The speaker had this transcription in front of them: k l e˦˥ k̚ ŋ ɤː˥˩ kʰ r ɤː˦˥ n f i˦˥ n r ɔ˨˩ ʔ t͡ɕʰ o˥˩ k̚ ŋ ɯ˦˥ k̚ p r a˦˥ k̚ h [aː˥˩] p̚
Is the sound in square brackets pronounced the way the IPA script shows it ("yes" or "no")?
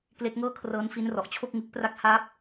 no